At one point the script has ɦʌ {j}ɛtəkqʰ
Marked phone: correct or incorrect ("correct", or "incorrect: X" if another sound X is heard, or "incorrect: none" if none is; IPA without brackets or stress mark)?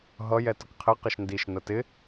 correct